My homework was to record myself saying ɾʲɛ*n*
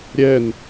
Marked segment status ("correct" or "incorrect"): correct